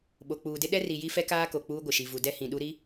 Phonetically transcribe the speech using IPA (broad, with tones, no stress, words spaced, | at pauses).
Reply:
ɓo˨k͡puː˨dɪ˦ ɗɛ˦ri˨ ji˦fɛ˦kaː˦ko˨ k͡puː˦ɡʷɪ˨ʃi˨ vu˨dɛ˦hĩ˨ɗu˦ ɾi˦